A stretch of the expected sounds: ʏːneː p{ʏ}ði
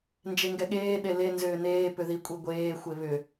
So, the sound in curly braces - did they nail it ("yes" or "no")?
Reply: yes